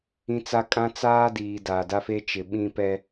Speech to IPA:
ĩ˦ t͡s a˦ kʼ ã˦ t͡s aː˦ d iː˨ d aː˨ d a˦ f e˦ t͡ʃ ɪ˨ ɓ ĩ˦ p ɛ˦

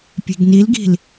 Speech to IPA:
pʲ e̤ ɡ n i l ɡ i̤ l

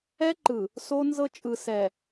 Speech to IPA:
ɛ˦ ǃ ɯ˨ | s o˦ n z ɤ˦ t͡ʃʼ ɯ˨ s ɛ˨

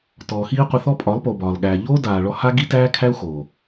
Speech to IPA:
t ɔː˨ x iː˦ qʷ ɪ˧ θ ɔ˦ pʼ ɒ˨˦ lˠ p o˨ b ɒː˨ l ɠ æː˨ ʎ o˦ d aː˨ ɭ ɔ˦ h a˦ ɡ i˦ t æː˦ kʰ æ˦ u̯ x o˨

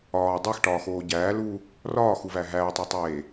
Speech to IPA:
ɒː dˤ e x ʈ ɒː x oː ɟ æː l uː | r ɒː x u v æ ɦ æː tˤ æ tˤ eː

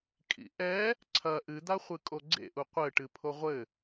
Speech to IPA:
kʼ ḭ ʔ ɛ | ǀʰ ɐ ʔ ɨ d̪ a χʷ ɨ kʼ o ɡ͡ǀ ḛ ʔ u qʷ ɘ ʈ ɨ pʰ o ʁʷ ɘ

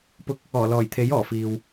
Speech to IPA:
p ʊ˧ k̚ | ɔː˨˩ l ɔː˨˩ j t̪ʰ e˨˥ j ɔː˨˩ f iː˨ w

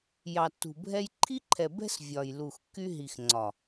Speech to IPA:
j ɑ˨ tː ṳ˨ bʱ ɛ˦ j ǃʰ i˦ ǃʰ ɛ˨ b ɛ̤˦ s vʲ ɒ˨ j l u˨ x kː y˦ ɦ i˨ x ŋ͡ǀ ɒ˨

